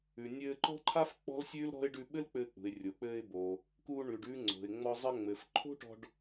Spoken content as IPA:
ʉ˩ nʲɘː˧ǃɔ̤˥ǃʰa˥f k͡pɔ̤˥lsʲʉː˥lɾɔ̤˥ɪ̯ ɖʉ˧ ɓɘ˥lk͡pɘː˧k͡pṳ˩ɪ̯ rʲo˩k͡pɘː˧ɪ̯boː˩ | kuː˧ɳʉ˩ɖʉː˧ ŋ͡ǀo̤˩ɪ̯ŋ͡mɔ˧ zˤɘ˧ŋ͡mɘ˩f ǃʰo̤˥ʈɔ̤˧ɖ

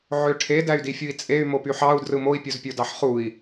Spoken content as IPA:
ʕøʈʰe dæy̯difʲui̯t͡sʼey̯ mopyħɑu̯ drɯmoi̯ pʲozpʲodɑħχui̯

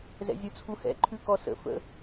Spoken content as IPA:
zɛ̰zʲut͡sʰuhɛ̰ ǃʰʉkɔsə̰ fə̰

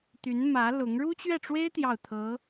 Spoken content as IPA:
t̪y˧˥nmä˧˥ lʊ˧˥ŋ ɻu˥t͡ɕɥɛ˥˩ʈ͡ʂwe˥ɪ̯ t̪jɑ˥˩ʊ̯t̪ʰɤ˧˥

